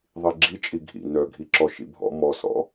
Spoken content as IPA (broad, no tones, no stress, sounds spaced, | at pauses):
ðˤ i ɡ͡ǁ i t͡ʃʼ i ɡʱ ḭ n œ ɡʱ i ǁ ɔ ʃ ḭ bʱ ɔ̰ m ɔ s ɔ̰